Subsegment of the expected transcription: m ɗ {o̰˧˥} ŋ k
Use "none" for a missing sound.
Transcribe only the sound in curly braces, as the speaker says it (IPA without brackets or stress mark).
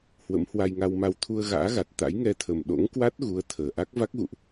o̰˧˥